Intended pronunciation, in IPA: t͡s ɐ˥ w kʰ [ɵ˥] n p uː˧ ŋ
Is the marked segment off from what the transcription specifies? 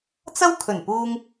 yes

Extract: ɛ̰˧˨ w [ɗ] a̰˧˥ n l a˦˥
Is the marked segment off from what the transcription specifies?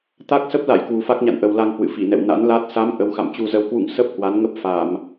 yes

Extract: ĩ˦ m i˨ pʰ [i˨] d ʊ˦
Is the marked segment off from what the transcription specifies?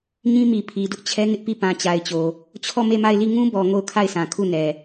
no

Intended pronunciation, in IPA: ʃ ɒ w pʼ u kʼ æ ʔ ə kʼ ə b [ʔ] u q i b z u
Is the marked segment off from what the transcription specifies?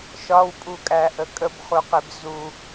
yes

